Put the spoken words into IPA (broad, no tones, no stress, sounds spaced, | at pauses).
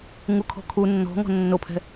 ŋ u kʰ ɔ̤ kʰ u nː ɔ̤ ŋ ɔ̤ nː o pʰ ɛ̤